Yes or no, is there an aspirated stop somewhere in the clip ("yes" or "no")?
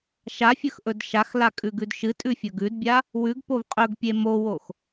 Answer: no